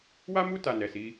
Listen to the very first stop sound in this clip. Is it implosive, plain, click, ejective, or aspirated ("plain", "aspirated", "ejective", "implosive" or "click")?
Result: plain